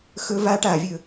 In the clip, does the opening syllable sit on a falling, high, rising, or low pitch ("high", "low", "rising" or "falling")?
high